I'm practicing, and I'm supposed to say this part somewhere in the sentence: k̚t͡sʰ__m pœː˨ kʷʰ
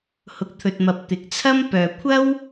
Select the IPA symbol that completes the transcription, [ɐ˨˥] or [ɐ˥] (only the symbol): ɐ˥